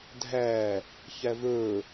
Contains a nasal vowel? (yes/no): no